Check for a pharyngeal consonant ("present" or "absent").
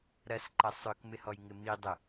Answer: absent